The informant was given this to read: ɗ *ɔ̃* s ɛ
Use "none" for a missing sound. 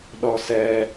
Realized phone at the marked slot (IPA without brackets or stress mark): ɔ